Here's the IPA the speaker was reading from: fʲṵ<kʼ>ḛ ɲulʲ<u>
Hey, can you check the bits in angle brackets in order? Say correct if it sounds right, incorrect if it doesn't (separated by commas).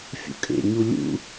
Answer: correct, incorrect